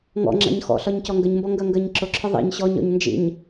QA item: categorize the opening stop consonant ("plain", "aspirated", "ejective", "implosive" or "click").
click